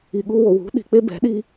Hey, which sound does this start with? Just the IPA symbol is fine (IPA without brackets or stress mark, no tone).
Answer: i